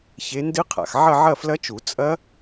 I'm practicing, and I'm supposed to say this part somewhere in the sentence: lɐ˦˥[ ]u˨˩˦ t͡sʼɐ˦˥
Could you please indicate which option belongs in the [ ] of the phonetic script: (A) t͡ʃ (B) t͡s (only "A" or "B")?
A